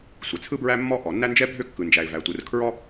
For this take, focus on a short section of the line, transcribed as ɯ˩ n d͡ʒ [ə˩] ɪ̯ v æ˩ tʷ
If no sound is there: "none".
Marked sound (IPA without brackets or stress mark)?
æ˩